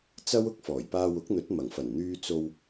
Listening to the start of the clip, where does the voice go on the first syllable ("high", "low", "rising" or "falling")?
high